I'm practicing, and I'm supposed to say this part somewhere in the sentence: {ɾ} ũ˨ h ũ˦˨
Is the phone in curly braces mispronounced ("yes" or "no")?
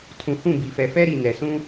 yes